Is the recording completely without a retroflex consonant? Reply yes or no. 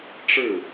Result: no